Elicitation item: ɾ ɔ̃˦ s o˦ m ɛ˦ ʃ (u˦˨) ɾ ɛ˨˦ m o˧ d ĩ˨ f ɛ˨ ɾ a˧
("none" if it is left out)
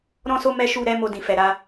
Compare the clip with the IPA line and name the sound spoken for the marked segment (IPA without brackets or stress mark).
u˦˨